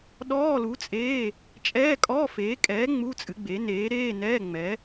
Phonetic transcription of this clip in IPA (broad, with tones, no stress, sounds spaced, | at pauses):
ɗ ɔː˧˥˧ l u˨˥ t͡sʼ eː˧˥˧ | t͡ʃʼ ɛː˧˥˧ kʼ ɔ˧˥˧ f eː˨˥ kʼ ɛː˨˥ ŋ͡m u˧˥˧ t͡sʼ ɨ˨˥ ɡ͡b e˨˥ n eː˨˥ ɾ eː˧˥˧ n ɛː˧˥˧ ŋ͡m ɛ˨˥